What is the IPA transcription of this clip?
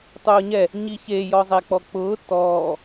tˤ ʊː ɲ ɛ | ɲ i ç e j ɔ zˤ ɛ k͡p ɔ k͡p ʊː t ɔː

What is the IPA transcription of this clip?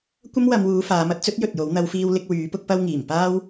kʷ ɐ˥ m w ɐ˨˧ m w uː˨˧ f aː˨˥ m ɐ˧ t̚ t͡s ɵ˥ t̚ j ɵ˨ t̚ j o˨˥ w n̪ ɐ˨˧ w f iː˧ w l ɪ˧ k̚ w yː˨˥ p ʊ˥ k̚ p ɐ˥ w ŋ iː˨˩ m p aː˥ w

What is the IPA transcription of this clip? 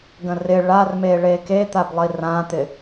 ɡ ə̃ r ɪ ɭ a r m e ɭ e k e t̪ a b lˠ i r ã t̪ ɪ

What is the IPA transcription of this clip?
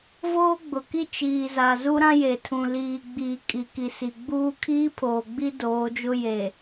v oː˦ ɡ͡b ʊ˨ k i˦ t͡ʃ iː˨ z a˨ z u˦ ɾ ã˦ j e˨ tʰ ũ˨ l iː˨ ɡ͡b iː˨ kʼ i˨ k i˨ s i˨ ɡ͡b uː˦ kʰ iː˦ pʰ oː˨ ɡ͡b i˦ d oː˨˦ d͡ʒ ʊ˦ j e˨

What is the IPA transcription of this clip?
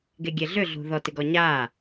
ɡ e ɡʲ e ɮ ʏ ɮ ṳ ð ɔ t ɪ ɡ ɔ ɲ aː

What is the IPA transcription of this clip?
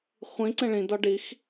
χʷ ĩ ǀ ẽ ɭ ĩ d ɒ ɖ i x

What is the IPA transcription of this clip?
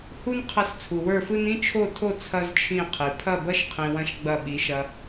h u˦ n qʰ ɐ˧ s t͡sʰ u˨ w ə˞˦˨ f ɯ˦ n ĩ˦ t͡ʃʰ o˦˨ tʰ o˦˨ t͡sʰ ɐ˦ z t͡ʃʰ ĩ˦˨ qʰ i˨ pʰ ɐ˦˨ b ɐ˦ ʃ qʰ ĩ˧ w ɐ̃˦ ʃ ɡ͡b ɐ˦˨ ɓ i˨˦ ʃ ɐ˧

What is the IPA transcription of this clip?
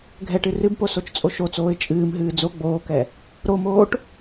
ɡʱ ɛ ʈ ɨ r ɨ b p o s o t͡ʃ t͡sʼ o ʃ o t͡s oː ɪ̯ t͡ʃʼ ɨː m ɦ ɨː d͡z o ɡ͡b oː k ɛ | ɾ o m oː ʈ

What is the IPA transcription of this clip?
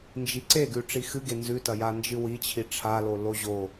n d͡ʒ i ǀ e ɡ ʉ ʈ͡ʂ i x ɨ ɡ e n z ʉ t ɐ j a n d͡ʒ ɨ w i t͡ɕʰ i ʈ͡ʂʰ a l o l o ʑ o

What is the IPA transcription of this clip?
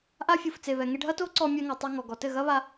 ʔ a˦ fʲ u˨ f t͡s e˨ β ɛ˨ ŋ e˧ ɖʱ ɐ˦ t o˦ ǀ ɔ˧ mʲ ɛ˧ ŋ ɐ˨ tˤ u˧ ŋ ɔ˨ ɡ ɔ˨ t ɘ˦˨ ɣ ɐ˦ β a˧

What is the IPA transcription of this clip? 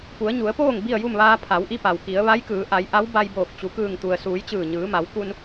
p u˩˧ ə̯ ɲ u˩˧ ə̯ p oː˥˨ ŋ b i˥˨ ə̯ j u˥˨ m ʋ aː˧ pʰ a˩˧ w ʔ i˧ p a˩ w k i˩˧ ə̯ ʋ a˧˥ j k ɯː˩˧ ʔ a˩˧ j ʔ a˧˥ w b a˧ j b oː˧˩ k̚ t͡ɕ u˩ k ɯː˧˩ ŋ t̪ u˩ ə̯ s uː˩˧ j t͡ɕ ɯː˧˩ ɲ ɯː˩˧ m a˩˧ w k u˧ n

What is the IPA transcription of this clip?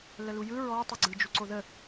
l ə l u j ɯ ɹ ɔ tˤ u ɡ͡ǀ ɯ d͡ʒ u ǀ o ð ə

